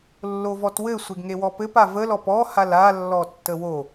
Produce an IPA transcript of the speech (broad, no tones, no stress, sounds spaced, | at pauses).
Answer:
lː o v ɔ t w ɘ sʷ e ɡ ŋ e w ɔ p ɘ p a v ə l ɔ p ɔ h a l a lː ɔ tː ə w o